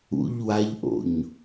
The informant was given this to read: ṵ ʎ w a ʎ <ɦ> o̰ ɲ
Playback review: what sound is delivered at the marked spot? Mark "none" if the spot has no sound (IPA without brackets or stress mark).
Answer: ʔ